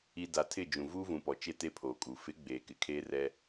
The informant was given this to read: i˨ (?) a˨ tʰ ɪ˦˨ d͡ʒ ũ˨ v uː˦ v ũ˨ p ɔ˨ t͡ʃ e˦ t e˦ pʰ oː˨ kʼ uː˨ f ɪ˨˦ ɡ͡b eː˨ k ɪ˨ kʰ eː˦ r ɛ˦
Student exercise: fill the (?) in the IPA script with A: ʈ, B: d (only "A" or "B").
B